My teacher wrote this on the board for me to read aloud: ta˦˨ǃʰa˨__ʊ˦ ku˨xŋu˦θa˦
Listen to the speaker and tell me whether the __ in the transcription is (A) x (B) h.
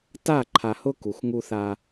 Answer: B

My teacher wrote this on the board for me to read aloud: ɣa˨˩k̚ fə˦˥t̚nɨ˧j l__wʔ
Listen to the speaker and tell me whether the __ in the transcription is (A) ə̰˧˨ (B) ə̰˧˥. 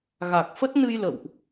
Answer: A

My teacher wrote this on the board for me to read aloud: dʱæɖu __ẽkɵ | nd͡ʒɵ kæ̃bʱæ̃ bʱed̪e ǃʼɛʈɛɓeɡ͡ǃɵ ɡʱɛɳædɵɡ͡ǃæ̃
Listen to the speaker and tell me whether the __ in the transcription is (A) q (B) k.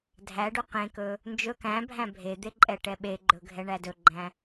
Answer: A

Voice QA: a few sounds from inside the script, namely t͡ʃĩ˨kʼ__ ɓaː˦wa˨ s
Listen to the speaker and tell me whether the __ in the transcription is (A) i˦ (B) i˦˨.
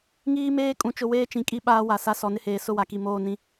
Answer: A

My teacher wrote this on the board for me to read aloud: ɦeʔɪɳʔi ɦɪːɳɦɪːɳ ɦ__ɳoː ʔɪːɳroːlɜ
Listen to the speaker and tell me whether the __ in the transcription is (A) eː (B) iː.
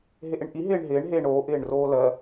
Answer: A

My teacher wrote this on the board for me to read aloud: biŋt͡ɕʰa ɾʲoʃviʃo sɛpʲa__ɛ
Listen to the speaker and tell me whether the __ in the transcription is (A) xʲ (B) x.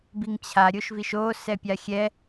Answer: A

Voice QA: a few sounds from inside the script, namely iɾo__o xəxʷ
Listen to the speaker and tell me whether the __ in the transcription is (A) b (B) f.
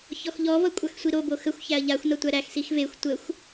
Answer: A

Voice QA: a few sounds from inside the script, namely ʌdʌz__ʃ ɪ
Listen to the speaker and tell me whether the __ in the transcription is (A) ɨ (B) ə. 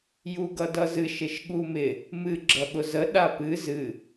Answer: A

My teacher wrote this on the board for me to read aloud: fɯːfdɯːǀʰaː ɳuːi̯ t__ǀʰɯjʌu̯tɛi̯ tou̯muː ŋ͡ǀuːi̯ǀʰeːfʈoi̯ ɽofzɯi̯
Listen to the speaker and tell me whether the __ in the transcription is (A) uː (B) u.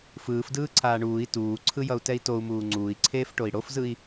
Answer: A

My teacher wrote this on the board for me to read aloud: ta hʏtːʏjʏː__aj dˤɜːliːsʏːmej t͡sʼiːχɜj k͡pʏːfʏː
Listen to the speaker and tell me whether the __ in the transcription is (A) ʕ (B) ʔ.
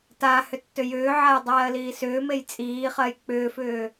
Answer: A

